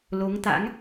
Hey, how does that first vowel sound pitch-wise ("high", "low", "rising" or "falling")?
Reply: rising